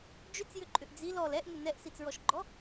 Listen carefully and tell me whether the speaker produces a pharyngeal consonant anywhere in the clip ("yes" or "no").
no